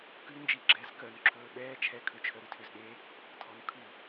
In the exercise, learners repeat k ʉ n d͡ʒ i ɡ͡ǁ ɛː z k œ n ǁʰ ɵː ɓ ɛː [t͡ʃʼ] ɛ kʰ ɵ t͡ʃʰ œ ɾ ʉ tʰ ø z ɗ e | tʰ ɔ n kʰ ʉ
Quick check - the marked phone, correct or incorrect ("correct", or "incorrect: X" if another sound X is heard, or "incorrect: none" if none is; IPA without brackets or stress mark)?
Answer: incorrect: t͡ʃʰ